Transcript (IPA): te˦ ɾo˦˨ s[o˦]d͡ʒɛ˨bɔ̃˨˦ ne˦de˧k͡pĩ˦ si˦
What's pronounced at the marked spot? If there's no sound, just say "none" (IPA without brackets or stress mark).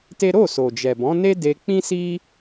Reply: o˨